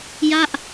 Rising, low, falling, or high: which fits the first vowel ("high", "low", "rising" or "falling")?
falling